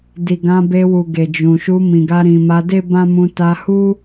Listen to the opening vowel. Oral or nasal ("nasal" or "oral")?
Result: oral